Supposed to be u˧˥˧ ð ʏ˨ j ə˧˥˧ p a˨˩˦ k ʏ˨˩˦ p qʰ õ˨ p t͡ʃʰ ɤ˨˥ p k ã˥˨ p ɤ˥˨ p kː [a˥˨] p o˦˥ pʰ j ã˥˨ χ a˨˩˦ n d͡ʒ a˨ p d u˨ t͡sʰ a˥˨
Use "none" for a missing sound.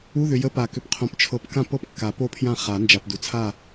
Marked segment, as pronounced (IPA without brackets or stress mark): a˨˩˦